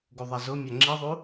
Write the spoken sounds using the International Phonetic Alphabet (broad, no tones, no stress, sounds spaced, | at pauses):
ɡ u ðˤ a z ʊ mʲ a ŋ͡ǁ i ðˤ u